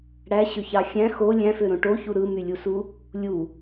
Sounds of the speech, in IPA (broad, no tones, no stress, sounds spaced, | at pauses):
ɽ æ ɕ ø ç ɑ xʲ æ̃ x o lʲ æ̃ f ø ɾ õ ʈ o ç u ɾ ɯ m y lʲ u s u | lʲ u